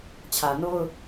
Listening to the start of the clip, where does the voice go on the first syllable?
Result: low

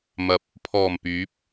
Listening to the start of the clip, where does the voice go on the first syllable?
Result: low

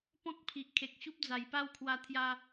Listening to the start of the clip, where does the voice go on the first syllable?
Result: high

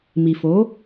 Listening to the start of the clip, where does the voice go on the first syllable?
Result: low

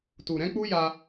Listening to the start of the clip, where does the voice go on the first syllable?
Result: low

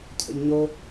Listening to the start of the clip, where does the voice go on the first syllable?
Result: high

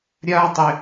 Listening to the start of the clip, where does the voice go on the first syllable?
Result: high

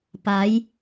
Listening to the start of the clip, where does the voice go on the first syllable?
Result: rising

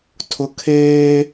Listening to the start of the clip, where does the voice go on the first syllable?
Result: high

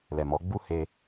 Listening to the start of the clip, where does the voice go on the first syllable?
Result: low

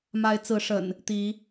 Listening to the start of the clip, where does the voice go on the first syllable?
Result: rising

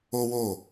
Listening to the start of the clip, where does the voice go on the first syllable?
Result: high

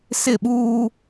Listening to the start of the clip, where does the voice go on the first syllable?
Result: falling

